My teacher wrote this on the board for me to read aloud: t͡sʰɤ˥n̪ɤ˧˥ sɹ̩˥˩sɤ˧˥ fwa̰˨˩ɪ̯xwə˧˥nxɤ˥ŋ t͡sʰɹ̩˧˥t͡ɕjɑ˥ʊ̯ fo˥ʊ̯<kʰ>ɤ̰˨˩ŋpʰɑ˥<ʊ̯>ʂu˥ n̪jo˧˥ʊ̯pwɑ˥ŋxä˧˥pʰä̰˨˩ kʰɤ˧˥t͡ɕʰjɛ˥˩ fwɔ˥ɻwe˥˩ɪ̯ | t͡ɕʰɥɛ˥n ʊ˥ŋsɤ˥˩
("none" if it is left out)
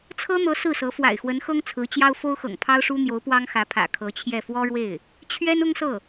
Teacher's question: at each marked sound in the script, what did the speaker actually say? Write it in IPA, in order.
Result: x, ʊ̯

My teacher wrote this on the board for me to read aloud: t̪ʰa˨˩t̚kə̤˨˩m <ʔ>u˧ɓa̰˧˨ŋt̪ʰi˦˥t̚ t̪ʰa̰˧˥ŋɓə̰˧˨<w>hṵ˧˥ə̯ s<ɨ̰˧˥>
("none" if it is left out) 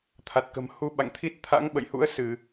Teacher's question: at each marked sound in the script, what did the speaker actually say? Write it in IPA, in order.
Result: h, j, ɨ˧˩˨

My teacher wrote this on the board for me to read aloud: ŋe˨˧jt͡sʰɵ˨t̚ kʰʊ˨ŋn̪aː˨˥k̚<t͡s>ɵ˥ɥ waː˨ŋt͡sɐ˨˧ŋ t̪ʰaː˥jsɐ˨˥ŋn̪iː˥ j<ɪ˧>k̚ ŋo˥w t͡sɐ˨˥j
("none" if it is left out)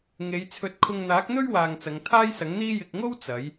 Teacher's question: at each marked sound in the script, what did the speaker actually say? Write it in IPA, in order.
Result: n̪, ɪ˧

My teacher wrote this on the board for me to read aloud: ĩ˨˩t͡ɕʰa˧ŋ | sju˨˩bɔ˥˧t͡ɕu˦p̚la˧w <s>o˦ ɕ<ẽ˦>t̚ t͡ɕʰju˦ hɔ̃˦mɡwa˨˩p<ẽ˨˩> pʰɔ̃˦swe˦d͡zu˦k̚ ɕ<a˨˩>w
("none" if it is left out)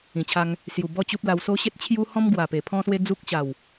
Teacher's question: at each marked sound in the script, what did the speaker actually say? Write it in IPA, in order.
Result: s, e˦, e˨˩, a˨˩

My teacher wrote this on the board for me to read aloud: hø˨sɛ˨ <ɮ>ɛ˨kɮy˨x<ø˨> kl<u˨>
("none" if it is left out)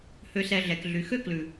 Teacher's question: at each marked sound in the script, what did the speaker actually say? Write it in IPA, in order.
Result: ɮ, ø˦, ʉ˨

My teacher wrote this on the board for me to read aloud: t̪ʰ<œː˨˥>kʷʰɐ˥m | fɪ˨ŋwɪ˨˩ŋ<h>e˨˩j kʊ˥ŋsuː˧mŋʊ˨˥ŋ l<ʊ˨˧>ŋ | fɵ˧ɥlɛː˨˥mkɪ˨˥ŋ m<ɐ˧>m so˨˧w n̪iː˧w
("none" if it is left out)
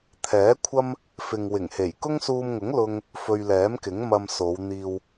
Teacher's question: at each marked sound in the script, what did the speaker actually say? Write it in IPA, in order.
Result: ɛː˨˥, h, ʊ˥, ɐ˧

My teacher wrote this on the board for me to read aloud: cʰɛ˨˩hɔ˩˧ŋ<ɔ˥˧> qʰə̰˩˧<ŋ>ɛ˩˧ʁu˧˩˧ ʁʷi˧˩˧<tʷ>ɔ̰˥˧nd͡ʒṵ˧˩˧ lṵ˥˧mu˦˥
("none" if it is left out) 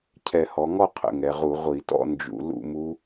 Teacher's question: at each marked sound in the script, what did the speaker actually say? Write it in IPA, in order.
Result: ɔ˥˧, ŋ, t

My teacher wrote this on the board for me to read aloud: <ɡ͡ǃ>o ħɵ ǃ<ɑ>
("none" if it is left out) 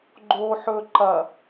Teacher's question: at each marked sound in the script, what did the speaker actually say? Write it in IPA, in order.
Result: ɡ͡ǃ, ɐ

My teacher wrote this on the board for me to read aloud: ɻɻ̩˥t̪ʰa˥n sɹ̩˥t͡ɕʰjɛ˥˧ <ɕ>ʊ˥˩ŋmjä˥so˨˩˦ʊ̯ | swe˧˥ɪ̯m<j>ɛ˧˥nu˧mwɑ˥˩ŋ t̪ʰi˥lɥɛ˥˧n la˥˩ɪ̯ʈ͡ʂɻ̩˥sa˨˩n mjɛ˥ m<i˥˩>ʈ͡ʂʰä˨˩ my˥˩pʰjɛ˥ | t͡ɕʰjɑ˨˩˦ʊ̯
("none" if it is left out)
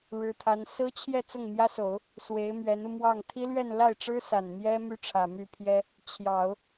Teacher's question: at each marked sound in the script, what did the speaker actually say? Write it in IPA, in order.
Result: t͡s, ɥ, y˥˩

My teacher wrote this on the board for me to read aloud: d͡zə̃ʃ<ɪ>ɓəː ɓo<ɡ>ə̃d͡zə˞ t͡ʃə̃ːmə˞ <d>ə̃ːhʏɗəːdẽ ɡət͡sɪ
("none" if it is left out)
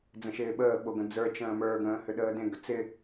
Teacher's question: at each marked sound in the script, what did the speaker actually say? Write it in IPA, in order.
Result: ɪː, ɡ, ɡ

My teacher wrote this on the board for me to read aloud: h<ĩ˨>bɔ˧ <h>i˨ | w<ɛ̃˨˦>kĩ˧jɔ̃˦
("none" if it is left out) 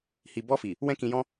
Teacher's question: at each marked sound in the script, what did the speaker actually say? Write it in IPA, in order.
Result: i˨, f, ɛ̃˦

